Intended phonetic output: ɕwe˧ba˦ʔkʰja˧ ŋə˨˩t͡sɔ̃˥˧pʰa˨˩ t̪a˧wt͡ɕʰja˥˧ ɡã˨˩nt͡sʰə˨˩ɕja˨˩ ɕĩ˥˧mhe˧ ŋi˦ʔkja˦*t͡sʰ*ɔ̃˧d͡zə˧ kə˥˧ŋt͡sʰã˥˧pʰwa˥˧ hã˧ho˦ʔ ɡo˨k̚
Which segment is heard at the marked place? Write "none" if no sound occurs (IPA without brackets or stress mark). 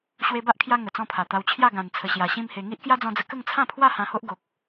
d͡z